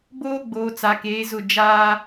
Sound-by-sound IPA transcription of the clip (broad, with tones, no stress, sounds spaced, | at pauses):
b oː˦ ɡ͡b oː˨ t͡s a˨ k eː˨˦ z ʊ˦˨ d͡ʒ aː˦